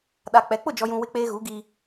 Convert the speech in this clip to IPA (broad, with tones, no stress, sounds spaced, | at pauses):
ɗ a˨ k͡p ɛ˨˦ k͡p ʊ˦˨ d͡ʒ ɔ˨ j ũ˨ w ɪ˦ k͡p eː˦ ɣ u˨˦ ɡ i˦